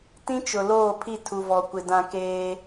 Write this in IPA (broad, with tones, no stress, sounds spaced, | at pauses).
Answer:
t ĩ˦ t͡ʃ ʊ˨ l oː˦˨ pʰ i˦˨ tʰ u˨ v ɔ˨ kʷ ɪ˨ d ã˨ k eː˦